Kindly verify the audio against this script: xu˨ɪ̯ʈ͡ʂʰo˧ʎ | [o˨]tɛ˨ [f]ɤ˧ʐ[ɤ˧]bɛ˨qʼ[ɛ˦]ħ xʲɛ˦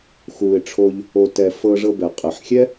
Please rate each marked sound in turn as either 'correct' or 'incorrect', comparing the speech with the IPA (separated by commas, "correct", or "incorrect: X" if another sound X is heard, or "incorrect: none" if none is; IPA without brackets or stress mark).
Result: correct, correct, correct, incorrect: ɛ˨